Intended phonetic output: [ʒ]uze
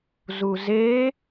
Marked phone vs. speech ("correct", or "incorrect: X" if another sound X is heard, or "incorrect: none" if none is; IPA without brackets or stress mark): incorrect: z